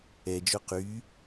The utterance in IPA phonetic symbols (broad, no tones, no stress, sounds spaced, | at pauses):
ɛ d͡ʒ o q y